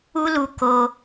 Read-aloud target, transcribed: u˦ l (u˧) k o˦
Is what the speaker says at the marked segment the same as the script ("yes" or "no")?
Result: yes